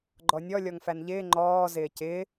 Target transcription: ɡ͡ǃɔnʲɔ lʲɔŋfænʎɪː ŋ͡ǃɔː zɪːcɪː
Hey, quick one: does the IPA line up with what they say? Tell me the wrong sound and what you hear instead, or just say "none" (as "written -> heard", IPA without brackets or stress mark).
none